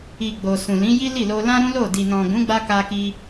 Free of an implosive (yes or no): yes